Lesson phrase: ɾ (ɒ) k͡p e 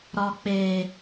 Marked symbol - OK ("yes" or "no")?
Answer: yes